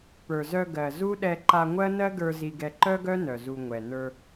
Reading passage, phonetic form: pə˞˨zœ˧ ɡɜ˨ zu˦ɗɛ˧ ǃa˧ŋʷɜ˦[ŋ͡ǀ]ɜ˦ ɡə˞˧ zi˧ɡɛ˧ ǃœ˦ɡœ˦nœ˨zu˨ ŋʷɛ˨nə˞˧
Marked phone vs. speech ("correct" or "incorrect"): incorrect